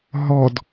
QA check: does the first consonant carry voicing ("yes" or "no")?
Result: yes